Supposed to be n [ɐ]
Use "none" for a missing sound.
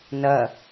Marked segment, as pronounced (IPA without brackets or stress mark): ɐ